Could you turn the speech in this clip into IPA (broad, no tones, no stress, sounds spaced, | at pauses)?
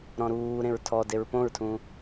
ɾ ɔ̃ ɾ uː ɾ ẽ ɹ tʰ ɔ d e ɹ p õ ɹ tʰ ũ